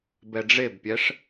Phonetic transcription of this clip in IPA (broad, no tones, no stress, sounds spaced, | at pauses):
b ɛ ɖ͡ʐ e b pʲ ɛ ʂ